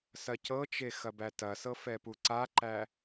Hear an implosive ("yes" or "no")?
no